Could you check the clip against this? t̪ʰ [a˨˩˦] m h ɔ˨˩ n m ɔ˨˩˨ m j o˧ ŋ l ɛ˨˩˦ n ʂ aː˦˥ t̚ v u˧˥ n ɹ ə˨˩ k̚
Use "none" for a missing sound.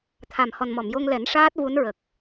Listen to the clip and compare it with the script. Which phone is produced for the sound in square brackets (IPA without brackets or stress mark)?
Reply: a˨˩